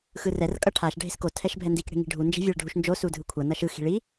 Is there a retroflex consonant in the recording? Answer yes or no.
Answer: yes